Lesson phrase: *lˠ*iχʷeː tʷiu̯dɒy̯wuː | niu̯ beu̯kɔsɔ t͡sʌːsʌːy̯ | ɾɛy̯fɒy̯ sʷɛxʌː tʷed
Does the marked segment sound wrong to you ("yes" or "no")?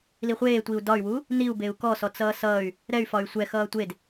yes